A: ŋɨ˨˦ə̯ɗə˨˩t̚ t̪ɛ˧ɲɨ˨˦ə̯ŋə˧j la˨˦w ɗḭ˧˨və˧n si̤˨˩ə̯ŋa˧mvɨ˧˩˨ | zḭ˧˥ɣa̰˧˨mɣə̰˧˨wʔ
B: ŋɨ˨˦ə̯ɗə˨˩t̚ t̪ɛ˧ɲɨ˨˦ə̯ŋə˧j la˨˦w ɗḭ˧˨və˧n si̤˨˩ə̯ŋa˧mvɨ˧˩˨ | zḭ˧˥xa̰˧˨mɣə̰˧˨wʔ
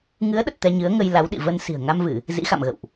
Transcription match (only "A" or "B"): B